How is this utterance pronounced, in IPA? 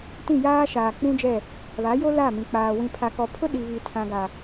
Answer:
t ĩ˦˨ j aː˦ ʃ aː˨ k͡p ũ˦ d͡ʒ ɛ˦˨ | β a˨˦ j o˦ l a˦˨ m ĩ˨ k͡p aː˨ w ĩ˨ pʰ a˨ k ɔ˨ pʰ ʊ˦ ɗ i˨ β i˨ tʰ ã˨ ɡ a˨

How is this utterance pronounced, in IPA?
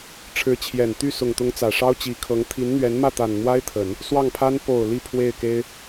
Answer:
ʈ͡ʂʰ ɻ̩˧˥ t͡ɕʰ j ɛ˨˩ n t̪ y˥˩ s ʊ˨˩ ŋ t̪ ʊ˧˥ ŋ t͡s ä˨˩ ʂ ɑ˥ ʊ̯ t͡ɕ i˧˥ kʰ ɤ˧˥ ŋ t̪ʰ i˧˥ n n̪ ɥ ɛ˧˥ n m ä˥˩ t̪ a˨˩ n n̪ w a˥ ɪ̯ t̪ʰ ə˨˩˦ n | s w ɑ˥˩ ŋ pʰ a˥ n p o˨˩ ʊ̯ l i˥˧ pʰ w e˥˩ ɪ̯ k e˥ ɪ̯

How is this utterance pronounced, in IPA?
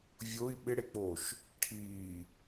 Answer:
vʲ o i̯ ɓ ɪ ɽ e k͡p o ʃ | ʈʰ iː

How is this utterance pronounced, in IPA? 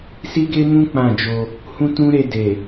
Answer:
s i˦ ɡ e˦ m ũ˦ k͡p ã˦˨ d͡ʒ o˧ | h ũ˦ t ũ˦ ɾ e˧ d e˨

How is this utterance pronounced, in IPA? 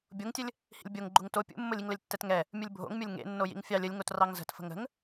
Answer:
bʲ o ŋ tʲ ə lʲ | h ḭ lʲ bʲ o ŋ ɡ͡ǃ u ŋ t o pʲ ṵ mː o lʲ i ŋ l ə lʲ tː ɛ t ŋ ɛ | mʲ u lʲ bʱ o̰ ŋ mʲ o lʲ ŋ ḛ nː o j ḭ ŋ fʲ ɑ lʲ ə lʲ ŋ o t r ɑ ŋ z ə̤ t f ə̤ ŋ ə̤ ŋ

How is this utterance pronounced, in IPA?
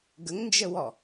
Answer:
ɡ ə ŋ n d͡ʒ ə w ɔ

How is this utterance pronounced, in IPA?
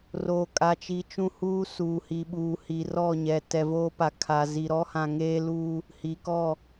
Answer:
r oː˨ kʼ a˨ t͡ʃ i˨ t͡ʃ ũ˦ h uː˦ s uː˨ h i˨ ɓ uː˨ h i˨ r ɔ˦˨ ɲ ɛ˨ t ɛ˨ v oː˦ p a˨ kʰ a˨ z i˨ ɾ ɔ˦ h ã˨ ŋ eː˦ l uː˦ | h i˨ k ɔ˦˨

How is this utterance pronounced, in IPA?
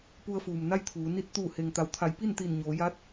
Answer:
p u˧ ə̯ f uː˩ m n a˥˨ j t̪ʰ uː˩˧ n i˧ t̚ t̪ uː˧˩ h e˩ ŋ t̪ a˩˧ w t̪ʰ a˩˧ j p i˥˨ n t̪ i˧˩ n ɲ oː˩˧ j aː˧˥ t̚

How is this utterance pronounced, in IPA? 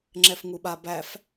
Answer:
ŋ͡ǁ ɛ f ŋ u ɓ a b æ f

